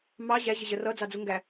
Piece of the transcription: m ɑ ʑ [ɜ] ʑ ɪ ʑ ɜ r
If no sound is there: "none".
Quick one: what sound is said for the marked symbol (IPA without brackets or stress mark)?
æ